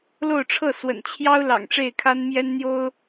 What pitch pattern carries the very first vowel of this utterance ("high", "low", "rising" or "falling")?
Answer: falling